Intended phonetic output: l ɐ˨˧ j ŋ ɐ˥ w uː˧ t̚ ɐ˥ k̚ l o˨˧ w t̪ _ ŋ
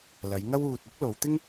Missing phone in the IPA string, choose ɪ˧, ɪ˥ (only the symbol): ɪ˥